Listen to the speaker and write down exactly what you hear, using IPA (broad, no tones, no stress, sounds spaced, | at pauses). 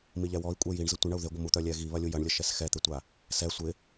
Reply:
m i ʎ ɛ w ɔ i̯ kʷʼ ɛ j i ɳ z ə tʷ ɪ ɳ ɐ u̯ ð ɪ ɡʷ ə m u t̪ œ lʲ ɛ ɣ i β ɐ lʲ u j ɐ ɳ lʲ ə ʃ ɛ s x ɛ t̪ ɪ tʷ a | s ɛ sʷ ɪ